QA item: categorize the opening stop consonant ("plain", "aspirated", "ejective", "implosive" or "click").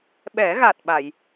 implosive